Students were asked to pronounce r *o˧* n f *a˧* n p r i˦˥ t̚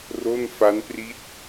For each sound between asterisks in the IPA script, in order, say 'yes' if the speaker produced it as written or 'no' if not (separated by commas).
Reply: no, no